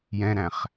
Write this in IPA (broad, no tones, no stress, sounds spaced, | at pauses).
j ɛ̃ ɾ æ̃ χ